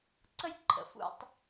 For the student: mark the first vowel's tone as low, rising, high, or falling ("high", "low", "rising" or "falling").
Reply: high